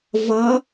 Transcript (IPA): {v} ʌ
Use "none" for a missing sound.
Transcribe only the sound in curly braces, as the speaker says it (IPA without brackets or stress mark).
v